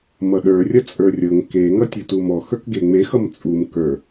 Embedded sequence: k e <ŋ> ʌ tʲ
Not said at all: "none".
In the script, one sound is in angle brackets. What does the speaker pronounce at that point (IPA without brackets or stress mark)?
ŋ